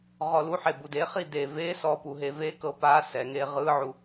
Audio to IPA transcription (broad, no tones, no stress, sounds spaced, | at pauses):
ʁ ɔ l u ħ e b u d e χ i d e v e s ɔ p u ɦ e v e k ɤ p a s ɛ ŋ e ʁ ɯ ʕ u